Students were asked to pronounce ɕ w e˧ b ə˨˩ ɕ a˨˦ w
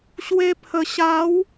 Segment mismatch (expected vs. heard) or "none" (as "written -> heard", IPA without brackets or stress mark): b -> pʰ